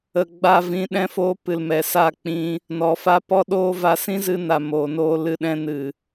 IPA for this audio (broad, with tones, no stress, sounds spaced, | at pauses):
ə˨ ɡ͡b a˧ v ĩ˨˦ ɗ ɛ̃˧ f oː˧ p ɨ˨ l m ɛ˨ s a˦˨ k͡p ĩ˧ | n ɔ˨ f a˦ p ɔ˦ ɗ oː˦ v a˧ s ĩ˦ z ɨ˧ n a˨ m oː˨ n oː˧ l ɨ˧ ɗ ɛ̃˧ n ɨ˨